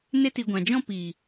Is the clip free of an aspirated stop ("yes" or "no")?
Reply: yes